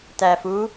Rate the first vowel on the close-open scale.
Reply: open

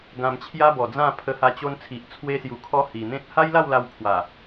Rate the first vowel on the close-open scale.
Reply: open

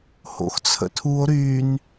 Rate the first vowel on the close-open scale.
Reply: mid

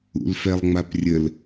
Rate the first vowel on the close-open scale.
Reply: close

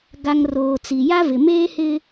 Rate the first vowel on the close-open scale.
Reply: open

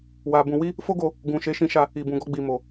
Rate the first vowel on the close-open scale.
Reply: open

